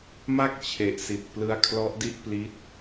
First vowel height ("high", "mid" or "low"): low